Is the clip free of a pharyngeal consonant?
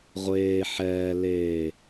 no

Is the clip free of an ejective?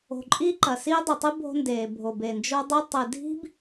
no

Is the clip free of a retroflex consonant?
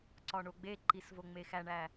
no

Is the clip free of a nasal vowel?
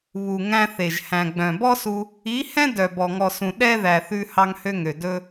no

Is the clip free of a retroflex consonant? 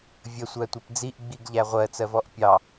yes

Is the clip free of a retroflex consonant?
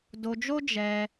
yes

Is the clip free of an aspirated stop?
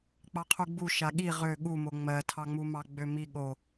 no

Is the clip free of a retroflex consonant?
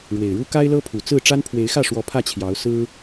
no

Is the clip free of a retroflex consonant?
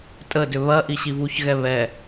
yes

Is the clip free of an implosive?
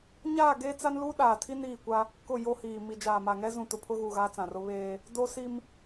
no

